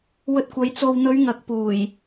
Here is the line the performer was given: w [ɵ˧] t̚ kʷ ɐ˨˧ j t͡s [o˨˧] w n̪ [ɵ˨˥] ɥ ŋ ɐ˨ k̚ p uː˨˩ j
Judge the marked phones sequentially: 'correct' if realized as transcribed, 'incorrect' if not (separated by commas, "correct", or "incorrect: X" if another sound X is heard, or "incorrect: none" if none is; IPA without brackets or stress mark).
correct, incorrect: o˨, incorrect: ɵ˨˧